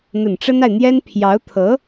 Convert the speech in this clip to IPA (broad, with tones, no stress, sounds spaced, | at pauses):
n̪ ə˨˩ n ʈ͡ʂ ə˥ n a˨ ɪ̯ n̪ j ɛ˥ n pʰ j ɑ˧˥ ʊ̯ t̪ʰ ɤ˧˥